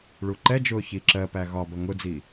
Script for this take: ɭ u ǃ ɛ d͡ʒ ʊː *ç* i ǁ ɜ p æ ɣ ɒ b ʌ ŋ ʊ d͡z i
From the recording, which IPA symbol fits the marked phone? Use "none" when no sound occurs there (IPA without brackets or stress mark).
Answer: ç